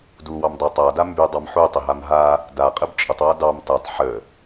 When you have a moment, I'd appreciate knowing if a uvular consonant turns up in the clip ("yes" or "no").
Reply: yes